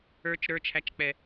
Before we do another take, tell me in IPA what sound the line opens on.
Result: ə˞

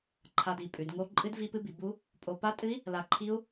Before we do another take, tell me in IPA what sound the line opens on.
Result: ǃʰ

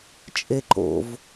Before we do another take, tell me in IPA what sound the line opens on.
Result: t͡ʃʼ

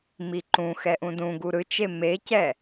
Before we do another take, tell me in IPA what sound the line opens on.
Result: m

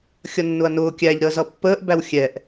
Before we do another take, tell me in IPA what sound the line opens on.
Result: xʲ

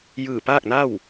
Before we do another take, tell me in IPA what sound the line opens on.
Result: j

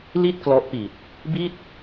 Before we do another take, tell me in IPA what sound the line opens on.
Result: l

